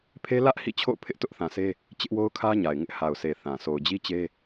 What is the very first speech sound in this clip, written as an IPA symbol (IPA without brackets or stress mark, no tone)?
pʰ